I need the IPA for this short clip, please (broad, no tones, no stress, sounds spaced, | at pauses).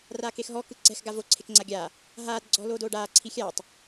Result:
r aː k e x ɦ ɔ k ɯ ǀ ɛ̤ x ɡ a v o ǀʰ e k ŋ͡ǀ a ɡʲ aː | ɦ aː d ɡ͡ǀ ɔ̤ l oː d oː ɖ aː ǀʰ i xʲ aː tˤ